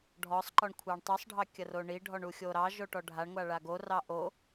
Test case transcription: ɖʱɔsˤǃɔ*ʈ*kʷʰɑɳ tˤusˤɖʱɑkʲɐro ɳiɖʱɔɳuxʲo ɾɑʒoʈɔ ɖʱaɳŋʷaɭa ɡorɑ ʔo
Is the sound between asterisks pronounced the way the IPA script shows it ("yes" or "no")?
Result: no